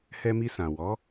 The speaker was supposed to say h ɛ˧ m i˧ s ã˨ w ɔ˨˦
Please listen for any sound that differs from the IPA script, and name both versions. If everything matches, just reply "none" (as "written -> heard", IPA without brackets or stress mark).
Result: none